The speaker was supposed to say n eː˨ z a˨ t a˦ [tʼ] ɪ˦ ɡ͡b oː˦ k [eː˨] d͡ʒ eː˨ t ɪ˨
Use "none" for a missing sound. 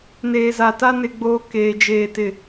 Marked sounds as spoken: n, eː˨

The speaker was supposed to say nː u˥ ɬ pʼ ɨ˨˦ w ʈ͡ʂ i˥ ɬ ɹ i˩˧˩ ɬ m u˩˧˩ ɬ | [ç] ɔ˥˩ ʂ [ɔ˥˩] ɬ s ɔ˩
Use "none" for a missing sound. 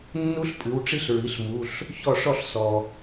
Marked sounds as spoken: ç, ɔ˥˩

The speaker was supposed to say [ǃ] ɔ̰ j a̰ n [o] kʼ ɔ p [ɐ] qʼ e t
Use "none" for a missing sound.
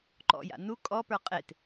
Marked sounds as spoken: ǃ, u, ə˞

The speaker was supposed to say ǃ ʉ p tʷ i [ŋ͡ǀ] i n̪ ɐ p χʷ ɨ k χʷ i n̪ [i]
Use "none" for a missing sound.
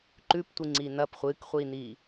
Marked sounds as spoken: ŋ͡ǀ, i

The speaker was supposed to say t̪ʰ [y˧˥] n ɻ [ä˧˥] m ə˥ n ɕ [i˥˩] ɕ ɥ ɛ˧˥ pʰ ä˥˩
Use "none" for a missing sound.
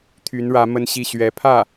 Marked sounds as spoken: y˧˥, ä˧˥, i˥˩

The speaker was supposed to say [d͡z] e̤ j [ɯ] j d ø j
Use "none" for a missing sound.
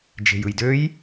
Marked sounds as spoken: d͡ʒ, ɯ

